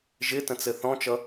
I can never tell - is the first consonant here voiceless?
no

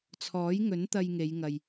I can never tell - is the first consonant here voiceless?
yes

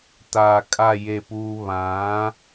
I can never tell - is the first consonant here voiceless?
yes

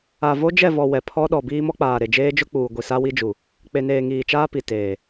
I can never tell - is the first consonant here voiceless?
no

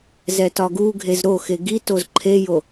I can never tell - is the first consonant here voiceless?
no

